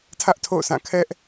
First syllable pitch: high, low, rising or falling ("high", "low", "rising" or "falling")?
high